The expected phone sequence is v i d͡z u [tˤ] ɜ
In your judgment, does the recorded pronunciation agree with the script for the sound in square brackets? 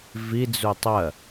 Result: yes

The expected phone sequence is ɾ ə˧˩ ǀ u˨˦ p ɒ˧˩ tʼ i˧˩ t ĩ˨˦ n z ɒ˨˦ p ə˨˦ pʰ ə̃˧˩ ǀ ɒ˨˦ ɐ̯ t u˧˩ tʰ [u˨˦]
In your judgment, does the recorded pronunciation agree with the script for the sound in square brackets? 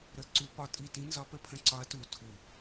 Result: no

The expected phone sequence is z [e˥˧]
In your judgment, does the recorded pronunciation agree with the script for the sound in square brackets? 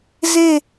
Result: yes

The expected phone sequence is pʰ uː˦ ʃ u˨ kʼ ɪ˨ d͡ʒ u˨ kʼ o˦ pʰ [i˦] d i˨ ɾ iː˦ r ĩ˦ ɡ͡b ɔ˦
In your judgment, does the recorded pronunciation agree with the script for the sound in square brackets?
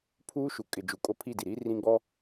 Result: no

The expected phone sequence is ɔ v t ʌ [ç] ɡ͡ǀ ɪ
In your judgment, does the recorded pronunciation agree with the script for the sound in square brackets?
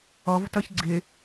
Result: yes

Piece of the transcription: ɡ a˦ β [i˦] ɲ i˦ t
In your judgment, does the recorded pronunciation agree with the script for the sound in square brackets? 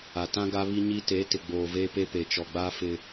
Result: yes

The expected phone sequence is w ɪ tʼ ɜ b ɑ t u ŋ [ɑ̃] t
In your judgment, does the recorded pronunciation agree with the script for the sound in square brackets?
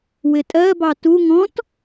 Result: no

